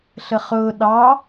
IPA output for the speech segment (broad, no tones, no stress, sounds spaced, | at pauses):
ɬ ə χ ʊː ɗ ɑ